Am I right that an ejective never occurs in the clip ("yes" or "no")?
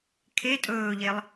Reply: no